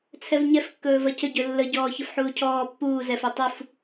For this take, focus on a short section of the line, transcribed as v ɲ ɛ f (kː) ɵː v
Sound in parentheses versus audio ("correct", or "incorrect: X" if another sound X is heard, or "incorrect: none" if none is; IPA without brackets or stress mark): correct